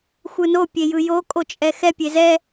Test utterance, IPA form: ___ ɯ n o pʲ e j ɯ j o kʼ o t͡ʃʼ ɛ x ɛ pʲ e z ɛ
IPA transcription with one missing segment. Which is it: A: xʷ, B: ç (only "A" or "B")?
A